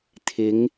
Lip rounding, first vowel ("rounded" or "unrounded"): unrounded